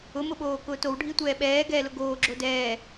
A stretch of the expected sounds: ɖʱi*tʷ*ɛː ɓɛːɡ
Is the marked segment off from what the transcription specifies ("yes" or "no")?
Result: no